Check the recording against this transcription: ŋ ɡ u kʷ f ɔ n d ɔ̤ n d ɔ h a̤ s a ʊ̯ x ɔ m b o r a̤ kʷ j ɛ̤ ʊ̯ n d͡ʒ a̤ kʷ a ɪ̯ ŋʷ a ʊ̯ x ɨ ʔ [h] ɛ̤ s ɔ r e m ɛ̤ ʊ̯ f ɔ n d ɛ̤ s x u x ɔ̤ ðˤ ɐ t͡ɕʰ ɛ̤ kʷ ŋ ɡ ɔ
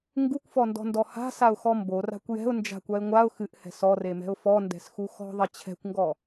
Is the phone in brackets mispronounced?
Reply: no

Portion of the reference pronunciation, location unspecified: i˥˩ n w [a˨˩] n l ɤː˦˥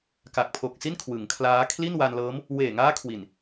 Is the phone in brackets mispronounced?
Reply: yes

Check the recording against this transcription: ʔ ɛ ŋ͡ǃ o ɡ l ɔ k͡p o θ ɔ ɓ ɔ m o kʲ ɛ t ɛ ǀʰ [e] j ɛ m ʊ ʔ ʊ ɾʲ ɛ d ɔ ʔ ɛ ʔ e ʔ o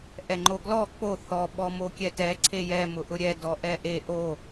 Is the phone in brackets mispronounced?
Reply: no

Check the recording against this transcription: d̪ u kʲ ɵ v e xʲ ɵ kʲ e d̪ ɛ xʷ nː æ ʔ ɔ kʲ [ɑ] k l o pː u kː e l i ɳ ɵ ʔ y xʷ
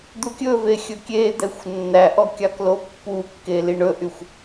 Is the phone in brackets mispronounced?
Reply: no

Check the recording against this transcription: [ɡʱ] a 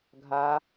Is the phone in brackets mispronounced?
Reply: no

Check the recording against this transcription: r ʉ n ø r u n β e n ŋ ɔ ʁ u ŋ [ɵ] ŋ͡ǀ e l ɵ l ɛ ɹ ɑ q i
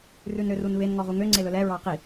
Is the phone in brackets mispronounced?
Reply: yes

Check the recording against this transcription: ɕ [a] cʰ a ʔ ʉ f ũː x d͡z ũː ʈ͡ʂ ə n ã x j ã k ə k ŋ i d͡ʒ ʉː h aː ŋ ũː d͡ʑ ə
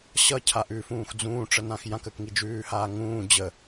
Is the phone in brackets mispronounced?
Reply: yes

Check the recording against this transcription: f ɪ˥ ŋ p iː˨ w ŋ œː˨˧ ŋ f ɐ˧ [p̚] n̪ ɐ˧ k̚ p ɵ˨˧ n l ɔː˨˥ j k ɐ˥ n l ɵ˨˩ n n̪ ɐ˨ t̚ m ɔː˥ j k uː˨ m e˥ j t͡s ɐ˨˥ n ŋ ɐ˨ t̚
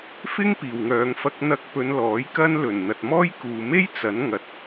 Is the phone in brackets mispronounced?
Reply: yes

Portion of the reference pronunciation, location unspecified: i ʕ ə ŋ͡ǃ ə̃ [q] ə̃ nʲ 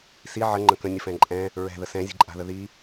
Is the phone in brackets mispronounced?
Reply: yes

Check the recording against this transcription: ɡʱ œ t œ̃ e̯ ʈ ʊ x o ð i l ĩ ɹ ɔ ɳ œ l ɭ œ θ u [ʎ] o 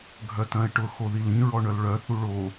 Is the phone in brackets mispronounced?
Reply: yes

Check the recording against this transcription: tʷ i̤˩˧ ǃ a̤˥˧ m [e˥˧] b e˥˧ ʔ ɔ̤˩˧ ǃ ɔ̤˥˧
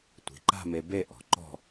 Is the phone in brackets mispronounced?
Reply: yes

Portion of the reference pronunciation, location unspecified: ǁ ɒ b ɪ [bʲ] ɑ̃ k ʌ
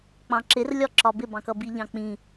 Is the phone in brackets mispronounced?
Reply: yes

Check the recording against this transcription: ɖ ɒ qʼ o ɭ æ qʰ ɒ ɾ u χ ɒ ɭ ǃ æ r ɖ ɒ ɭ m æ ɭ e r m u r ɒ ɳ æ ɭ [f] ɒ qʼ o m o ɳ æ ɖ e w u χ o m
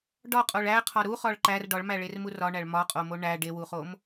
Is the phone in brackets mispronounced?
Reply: yes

